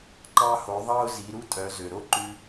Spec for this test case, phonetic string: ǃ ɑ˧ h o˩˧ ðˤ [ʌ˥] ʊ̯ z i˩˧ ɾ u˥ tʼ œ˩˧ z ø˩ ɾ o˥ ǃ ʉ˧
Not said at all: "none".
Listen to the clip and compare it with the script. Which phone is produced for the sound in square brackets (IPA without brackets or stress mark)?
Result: ɑ˥